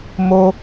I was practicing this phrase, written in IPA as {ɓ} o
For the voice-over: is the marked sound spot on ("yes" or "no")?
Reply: no